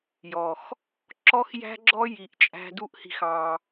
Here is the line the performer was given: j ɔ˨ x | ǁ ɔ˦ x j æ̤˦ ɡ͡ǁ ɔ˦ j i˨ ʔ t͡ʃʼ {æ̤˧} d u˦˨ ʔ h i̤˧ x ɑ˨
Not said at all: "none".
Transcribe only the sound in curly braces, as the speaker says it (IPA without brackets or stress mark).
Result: æ̤˧